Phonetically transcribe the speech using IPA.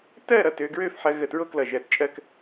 t ɜ˥˧ ɾ ʌ˧˩ t ø˧ ɡ ɹ ø˥˧ f ħ ɜ˧ ɣ ə˧˩ t ɹ o˥ k l ʌ˧˩ ʒ ɜ˧˩ t t͡ʃʼ ɜ˥˧ k

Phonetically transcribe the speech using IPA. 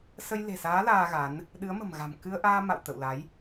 s ə˧ j l e̤˨˩ s aː˨˦ l aː˧ ɣ a˨˦ n | ɗ ɨ˨˦ ə̯ m ə̤˨˩ m ɣ a̤˨˩ m k ɨ˧ ə̯ ʔ aː˧ m a̰˧˨ w t̪ ə̰˧˨ w l a˨˦ j

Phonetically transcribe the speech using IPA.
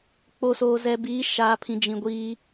k͡p o˨ s oː˨ z ɛ˨ b iː˨˦ ʃ aː˨ pʰ ĩ˨ d͡ʒ ĩ˨ ɡʷ iː˦

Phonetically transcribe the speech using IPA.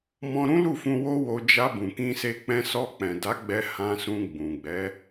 m ɔ̃˧ ɾ ũ˦ l u˦˨ f ũ˧ w o˦ w o˧ d͡ʒ a˧ b ũ˨ k ĩ˧ s e˧ k͡p ɛ̃˧ s ɔ˧ k͡p ɛ̃˨ d a˨˦ ɡ͡b ɛ˧ h ã˧ s ũ˧ ɡ͡b ũ˨ ɡ͡b ɛ˨˦

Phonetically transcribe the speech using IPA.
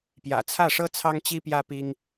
p j ä̰˨˩ t͡sʰ ä˥˩ ʂ ɤ˥ t͡sʰ ɑ˥ ŋ t͡ɕ i˥ p j ä˥ p i˥ ŋ

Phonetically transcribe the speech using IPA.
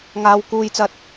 ŋ aː˥ w k uː˥ j t͡s ɐ˥ t̚

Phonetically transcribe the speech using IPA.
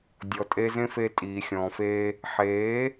dʲ ɔ˨ tʼ e˧ z ẽ˦ f e˧ tʼ iː˨ xʲ ɔ̃ː˨ f eː˦ | ħ eː˨˦

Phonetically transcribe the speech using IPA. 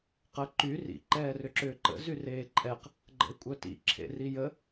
q ə ǃ y r ḭ ǃ ɛː r ʏ ǁ ʏː ǃ ə̰ z y r eː ǃʼ ɛ q | ɡ͡ǃ ə̰ e̯ kʷʼ œ t ḭ ǁʰ ḛ r i j ə

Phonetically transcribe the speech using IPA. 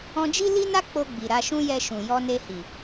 ɔ̃˧ d͡ʒ i˦ l i˦ n a˦ k͡p o˧ ɡ͡b i˨ ɾ a˧ ʃ ũ˦ j ɛ˧ ʃ ũ˨ j ɔ˧ n e˧ h i˨

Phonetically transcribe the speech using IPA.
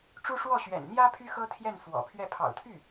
ʈ͡ʂ u˥ ʂ w ɔ˥˩ ɕ ɥ ɛ̰˨˩ n n̪ j ä˥ pʰ y˥ x ɤ˥ t̪ʰ j ɛ˥˩ n f w ɔ̰˨˩ pʰ ɥ ɛ˥˩ pʰ ɑ̰˨˩ ʊ̯ t̪ʰ y˥˩

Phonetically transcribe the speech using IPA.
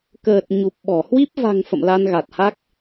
k əː˨˩ t̚ ɲ u˨˩ p̚ ɓ ɔ˧˩ h w i˦˥ p̚ v a̤˨˩ ŋ f ə̰˧˨ m l a˧ n ɣ a˨˩ t̚ h a˦˥ k̚

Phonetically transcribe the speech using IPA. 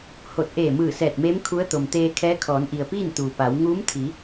h o˧˩ t̚ ʔ eː˧˩ m ɯː˧˩ s ɛː˧˩ t̚ m eː˧˥ m kʰ u˧˥ ə̯ t̪ o˩ m t̪ eː˧ kʰ ɛː˧˥ kʰ ɔː˩˧ n ʔ i˩ ə̯ p iː˥˨ n t̪ uː˩ p a˩˧ w ŋ uː˧˥ m t̪ʰ i˩˧

